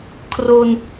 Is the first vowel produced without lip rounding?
no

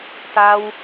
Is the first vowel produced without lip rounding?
yes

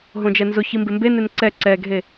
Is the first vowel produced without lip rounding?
no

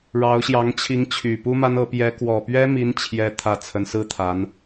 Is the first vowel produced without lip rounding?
yes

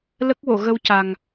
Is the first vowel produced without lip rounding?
yes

